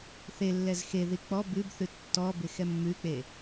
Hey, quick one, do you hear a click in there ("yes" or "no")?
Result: no